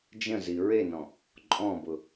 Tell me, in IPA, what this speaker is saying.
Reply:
d͡ʒ ə̃ z i ɹ e n ɔ̃ | ǃʼ ɔ̃ b ʊ

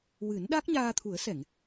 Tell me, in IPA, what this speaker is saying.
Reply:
w ɨ˨˩˦ n ɗ a˦˥ k̚ ɲ aː˧ t̪ʰ u˨˩˦ ə̯ s ɛ˨˩˨ ŋ

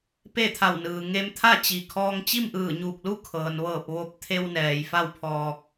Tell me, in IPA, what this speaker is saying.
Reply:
p e˥˨ t̪ʰ a˧˩ w n ɯː˩ ŋ e˧ m t̪ʰ a˥˨ t͡ɕ i˩ kʰ ɔː˧ ŋ t͡ɕ i˥˨ m ʔ ɯː˧˩ ɲ uː˧˩ k̚ l u˥˨ kʰ ɤː˩ n ʋ ɤː˧˩ p̚ ʋ o˧ p̚ t̪ʰ e˧ w n ɛː˩ j f a˥˨ w pʰ ɔː˧ k̚

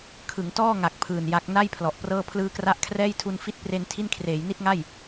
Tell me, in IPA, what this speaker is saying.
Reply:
kʰ ɯ˩˦ ŋ t ɔː˥˩ ŋ a˨˩ k̚ pʰ ɯː˨˩ n j a˦˥ k̚ n a˥˩ j pʰ l ɔ˨˩ ʔ p r ɤː˥˩ pʰ l ɯː˧ k r a˦˥ ʔ kʰ r ɛː˥˩ j tʰ u˧ n f i˥˩ t̚ p r e˧ n tʰ i˥˩ n kʰ r eː˩˦ j n i˥˩ t̚ ŋ a˥˩ j

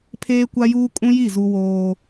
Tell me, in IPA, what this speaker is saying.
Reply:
pʰ eː˦ kʷ a˦ j uː˦ kʼ ũ˦ j i˦˨ z u˦ w oː˦

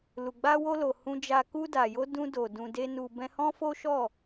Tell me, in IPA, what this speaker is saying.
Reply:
l u˨ ɡ͡b a˧ w o˧ l o˨ h ũ˧ d͡ʒ a˧ k u˧ d a˨ j o˧ d ũ˧ d o˨ d ũ˧ d e˦ n u˧ b ɛ̃˦ h ɔ̃˦ f o˦ ʃ ɔ˦˨

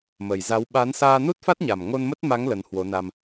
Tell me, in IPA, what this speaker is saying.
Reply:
m ə˨˩ j z a˨˦ w ɓ a˨˦ n s aː˧ n u˦˥ t̚ f a˦˥ t̚ ɲ a˨˩ m ŋ o˧ n m ə˦˥ t̚ m a˨˦ ŋ l ə˨˦ n h w o˨˦ n a˧ m

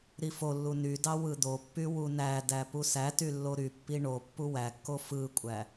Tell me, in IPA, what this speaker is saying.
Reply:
ɾ i f o lː u n y d ɑ w ɯ d̪ o pː y w u n æ d æ p u s æ t y lː o ɾ y pː i ɳ o pː u w æ kː o f ɯ kʷʼ æ

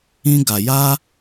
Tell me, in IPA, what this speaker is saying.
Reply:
ĩ˦ ɡ a˧ j a˦

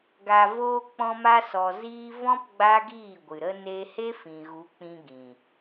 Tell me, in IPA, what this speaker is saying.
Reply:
ɡ a˨ v oː˧ k͡p ɔ̃˧ m a˧ s ɔ˨ z iː˧ v ɔ̃˦ p ɡ͡b a˦ ɡ iː˦˨ ɡʷ ɨ˨ ɾ ə˧ n e˧ h e˦ f ĩ˨ ɣ u˨˦ k͡p ĩ˧ ɡ ĩ˨

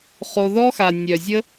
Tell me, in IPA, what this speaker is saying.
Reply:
χ o˦ ð ɔ˦ x a˧ nʲ œ˧ zʲ ə˦

